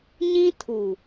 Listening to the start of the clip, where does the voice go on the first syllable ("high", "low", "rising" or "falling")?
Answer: high